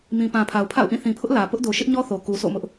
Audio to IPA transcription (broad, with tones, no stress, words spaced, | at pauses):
mĩ˨ pã˨pʰa˨ʊ̯ pʰa̰˦˨ʊ̯ʔĩ˦˨ θĩ˨pʰʊ˦ʔ lä˨ pʊ˦ʔdo˨ʃɪ˦ʔɲɔ˦ θo˨ ku˨so̰˦˨ mʊ˦ʔ